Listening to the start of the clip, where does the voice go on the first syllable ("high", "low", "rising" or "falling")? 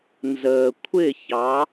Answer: low